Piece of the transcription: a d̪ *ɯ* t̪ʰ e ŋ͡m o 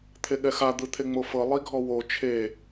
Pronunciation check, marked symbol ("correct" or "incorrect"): correct